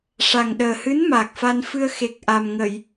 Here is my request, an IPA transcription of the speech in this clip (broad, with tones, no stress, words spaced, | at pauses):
ʂa˨˩ŋɗəː˨˩hɨ˧˥n maː˨˩k̚fa˧nfɨ˧ə̯ xe˨˩k̚ ʔa˨˩mŋə˨˩˨j